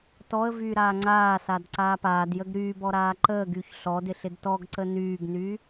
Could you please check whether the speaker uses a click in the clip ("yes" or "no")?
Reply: yes